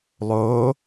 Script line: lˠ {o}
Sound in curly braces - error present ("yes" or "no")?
no